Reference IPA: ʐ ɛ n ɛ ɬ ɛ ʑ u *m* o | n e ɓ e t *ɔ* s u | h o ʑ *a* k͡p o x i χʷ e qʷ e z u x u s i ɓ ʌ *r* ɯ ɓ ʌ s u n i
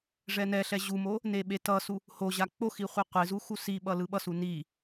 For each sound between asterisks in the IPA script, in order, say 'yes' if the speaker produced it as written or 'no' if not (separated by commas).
yes, no, yes, no